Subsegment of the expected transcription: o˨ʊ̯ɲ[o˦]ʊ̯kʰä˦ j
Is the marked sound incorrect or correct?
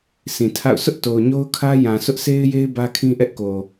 correct